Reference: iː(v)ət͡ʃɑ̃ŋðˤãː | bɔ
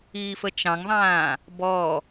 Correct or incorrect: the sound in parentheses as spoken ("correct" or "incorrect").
incorrect